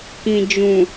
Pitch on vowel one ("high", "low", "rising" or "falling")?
low